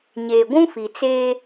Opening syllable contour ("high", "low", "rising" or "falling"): low